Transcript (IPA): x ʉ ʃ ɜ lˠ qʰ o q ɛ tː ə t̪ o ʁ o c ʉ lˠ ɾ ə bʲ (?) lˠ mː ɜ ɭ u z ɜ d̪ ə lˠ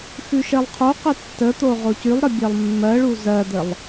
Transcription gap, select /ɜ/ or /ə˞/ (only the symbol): ɜ